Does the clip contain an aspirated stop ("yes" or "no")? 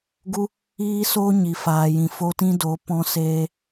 no